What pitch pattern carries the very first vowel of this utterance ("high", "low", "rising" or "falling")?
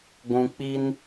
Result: low